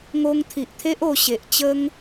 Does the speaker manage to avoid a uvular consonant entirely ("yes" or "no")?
yes